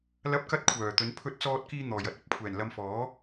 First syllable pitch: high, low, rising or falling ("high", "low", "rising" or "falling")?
high